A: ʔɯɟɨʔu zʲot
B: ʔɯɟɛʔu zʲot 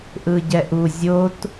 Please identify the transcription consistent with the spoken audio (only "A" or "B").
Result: B